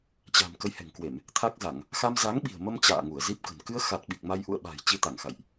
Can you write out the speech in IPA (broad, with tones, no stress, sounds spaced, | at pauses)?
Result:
t͡ɕ a̤˨˩ m k ə˨˦ j h ɛ̤˨˩ ŋ k w e˧˩˨ m | t̪ʰ a˦˥ k̚ z a˧˩˨ ŋ | x a˧ m z a˨˦ ŋ ɓ i̤˨˩ ə̯ m ə˧ m t͡ɕ a̰ː˧˨ ŋ u˧˩ ə̯ z i˦˥ p̚ k ə̤˨˩ n k ɨ˧ ə̯ x a˨˩ t̚ ɓ i˨˩ k̚ m a˧ j ʔ ṵ˧˨ ə̯ ɓ a̤ː˨˩ j t͡ɕ i˧ t̪ a˧˩ ŋ x a̰˧˨ j ʔ